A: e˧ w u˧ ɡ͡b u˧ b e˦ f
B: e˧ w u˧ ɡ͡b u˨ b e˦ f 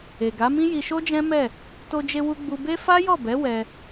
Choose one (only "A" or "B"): A